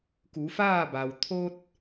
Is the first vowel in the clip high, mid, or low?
high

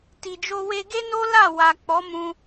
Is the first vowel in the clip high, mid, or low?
high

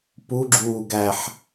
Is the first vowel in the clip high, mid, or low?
high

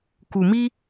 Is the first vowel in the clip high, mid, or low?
high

